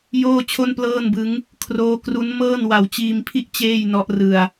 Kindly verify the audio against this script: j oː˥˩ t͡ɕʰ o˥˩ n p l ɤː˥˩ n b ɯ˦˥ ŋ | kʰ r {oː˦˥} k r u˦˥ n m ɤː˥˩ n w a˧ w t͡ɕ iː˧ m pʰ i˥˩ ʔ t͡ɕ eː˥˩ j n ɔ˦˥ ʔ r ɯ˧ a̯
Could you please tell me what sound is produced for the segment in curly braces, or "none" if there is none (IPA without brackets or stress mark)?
oː˦˥